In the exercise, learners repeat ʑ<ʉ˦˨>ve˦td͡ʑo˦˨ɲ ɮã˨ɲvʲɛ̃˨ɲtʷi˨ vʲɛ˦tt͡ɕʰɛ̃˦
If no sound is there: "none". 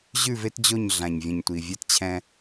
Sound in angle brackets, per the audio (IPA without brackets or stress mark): ʉ˦˨